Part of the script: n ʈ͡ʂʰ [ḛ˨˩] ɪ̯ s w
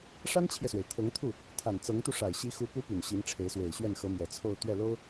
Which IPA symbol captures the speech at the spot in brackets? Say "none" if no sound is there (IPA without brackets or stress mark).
e˧˥